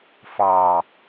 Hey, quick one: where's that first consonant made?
lips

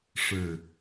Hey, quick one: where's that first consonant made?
retroflex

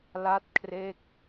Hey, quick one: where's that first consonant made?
tongue tip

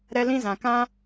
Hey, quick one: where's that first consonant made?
tongue tip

